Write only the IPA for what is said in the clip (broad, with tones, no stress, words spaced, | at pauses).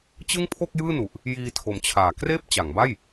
t͡ɕɯ˥˩ŋpʰo˥˩k̚jɯː˥˩nu˨˩ʔ | jiː˧tʰo˨˩mt͡ɕʰaː˩˦kreː˥˩p̚ t͡ɕa˩˦ŋba˥˩j